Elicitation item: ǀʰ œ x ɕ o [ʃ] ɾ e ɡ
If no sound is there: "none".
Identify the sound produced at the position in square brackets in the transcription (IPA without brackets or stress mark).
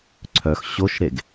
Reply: ʃ